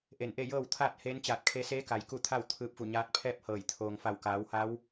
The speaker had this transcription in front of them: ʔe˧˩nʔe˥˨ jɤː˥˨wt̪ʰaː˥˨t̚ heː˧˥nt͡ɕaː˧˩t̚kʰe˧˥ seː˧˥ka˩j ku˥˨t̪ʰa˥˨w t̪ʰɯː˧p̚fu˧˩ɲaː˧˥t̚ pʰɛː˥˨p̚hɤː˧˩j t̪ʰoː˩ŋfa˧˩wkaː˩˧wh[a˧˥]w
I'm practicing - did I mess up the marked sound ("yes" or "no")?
no